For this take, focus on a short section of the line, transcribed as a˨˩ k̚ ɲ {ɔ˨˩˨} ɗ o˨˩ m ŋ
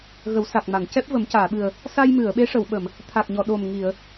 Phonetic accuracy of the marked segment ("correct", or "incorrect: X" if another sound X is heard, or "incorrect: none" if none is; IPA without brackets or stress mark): correct